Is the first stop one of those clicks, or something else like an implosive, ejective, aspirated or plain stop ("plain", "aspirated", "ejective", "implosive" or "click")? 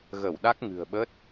implosive